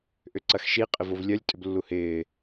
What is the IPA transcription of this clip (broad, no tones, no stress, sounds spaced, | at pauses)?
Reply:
ʔ ʏ ǀ ɐ x ʃ i qʼ ɪ v o v lʲ œ lʲ tʼ ʏ b lː u h ɪː